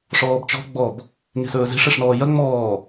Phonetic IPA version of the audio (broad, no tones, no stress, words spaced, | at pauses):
ʂɔːbt͡ʃɔ̤ ɡ͡bɔb | ŋe̤sɵːze̤ʂ ɛʂnɔːjɐ ŋ͡mɔː